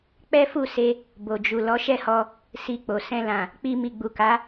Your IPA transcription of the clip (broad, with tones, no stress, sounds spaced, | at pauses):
k͡p ɛ˦ f u˦˨ s e˧ | b o˨ d͡ʒ u˨ l ɔ˨˦ ʃ ɛ˦˨ h ɔ˧ | s i˧ k͡p o˨ s ɛ̃˧ l ã˨ | k͡p i˧ m i˨ ɡ͡b u˨ k a˨˦